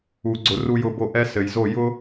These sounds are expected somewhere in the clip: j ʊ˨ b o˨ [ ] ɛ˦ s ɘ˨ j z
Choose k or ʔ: ʔ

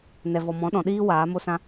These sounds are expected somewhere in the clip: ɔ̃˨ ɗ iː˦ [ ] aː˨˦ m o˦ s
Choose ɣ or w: w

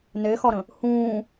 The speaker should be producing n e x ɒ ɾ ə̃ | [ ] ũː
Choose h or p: h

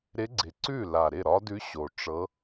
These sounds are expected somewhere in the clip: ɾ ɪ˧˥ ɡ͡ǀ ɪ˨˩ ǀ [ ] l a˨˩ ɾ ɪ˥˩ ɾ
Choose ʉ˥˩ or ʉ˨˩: ʉ˥˩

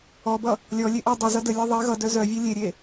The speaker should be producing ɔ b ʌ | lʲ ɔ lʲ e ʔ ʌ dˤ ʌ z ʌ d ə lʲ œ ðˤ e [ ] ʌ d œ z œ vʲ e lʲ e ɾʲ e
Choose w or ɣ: ɣ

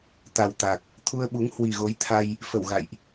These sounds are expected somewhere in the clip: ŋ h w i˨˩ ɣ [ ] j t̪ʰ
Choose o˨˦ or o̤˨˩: o˨˦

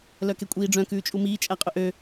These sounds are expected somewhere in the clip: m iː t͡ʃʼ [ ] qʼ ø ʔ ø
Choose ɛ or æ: æ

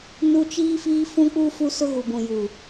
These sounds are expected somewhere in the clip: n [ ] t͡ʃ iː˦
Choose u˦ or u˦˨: u˦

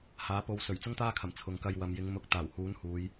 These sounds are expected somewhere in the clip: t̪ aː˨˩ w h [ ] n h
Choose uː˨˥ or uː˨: uː˨˥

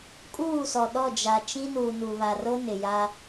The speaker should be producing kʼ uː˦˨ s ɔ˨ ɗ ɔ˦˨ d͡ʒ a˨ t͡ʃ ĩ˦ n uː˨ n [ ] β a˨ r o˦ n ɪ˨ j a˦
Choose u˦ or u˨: u˨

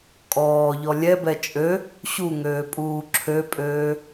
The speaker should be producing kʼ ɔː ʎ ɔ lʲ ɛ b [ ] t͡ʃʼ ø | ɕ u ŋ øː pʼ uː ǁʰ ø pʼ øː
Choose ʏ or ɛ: ɛ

